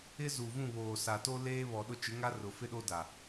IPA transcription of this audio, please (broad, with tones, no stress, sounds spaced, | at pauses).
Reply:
ɪ˦ z u˨ v ũ˦˨ β oː˨ s a˨ t o˦ l eː˦ β ɔ˨ ɗ ʊ˦˨ t͡ʃ ɪ˨˦ ŋ a˦ r ʊ˨ f ɪ˦ ɗ o˦ d a˨